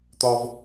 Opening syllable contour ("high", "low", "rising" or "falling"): high